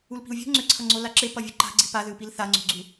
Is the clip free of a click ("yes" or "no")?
no